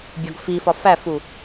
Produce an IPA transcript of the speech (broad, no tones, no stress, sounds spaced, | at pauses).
bʲ ɒ ɡ f i f ɒ f æ f u